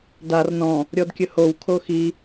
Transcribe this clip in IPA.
d a r n ɔ̃ | ɾʲ ɔ d kʲ ɵ h o w kʰ o x i

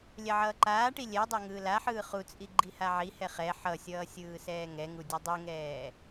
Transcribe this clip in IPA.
lʲ ɛ ʕ ʌː ǃ aː ʈ i lʲ ɛ dˤ ɛ ŋ ɯː l a ħ ɯː χ u t͡sʼ i ɡ͡ǃ i h a ʕ i h ɛ χ ɛ ħ ʌ sʲ ʌː sʲ ɯː s ɛː ŋ ɛ ŋ u dʲ ʌ dˤ u ŋ ɛː

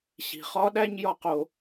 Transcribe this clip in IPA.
ɕ i̤˩ χ ɒ˦ ɗ æ˦ ɲ j ɒ˦ q o˨

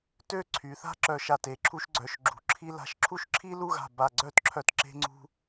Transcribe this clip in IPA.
t ø˥˧ ǀʰ y˩˧ θ a̤˥ ǁ œ˧˩ ʃ a˧˩ t e˩˧ ǁʰ u˧ ʃ ɡ͡ǀ œ˩˧ ʃ ɡ͡ǁ ṳ˩˧ ǁʰ i˧ l a̤˧˩ ʃ ǁʰ u˥˧ ʃ ǁʰ i˥ l u˥˧ ɣ a̤˧˩ b a˧˩ ɡ͡ǀ œ˥˧ t ǁʰ œ˧ t ǁ e̤˧ ŋ͡ǀ ṳ˧

